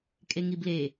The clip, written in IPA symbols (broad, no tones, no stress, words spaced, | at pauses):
kʼeŋible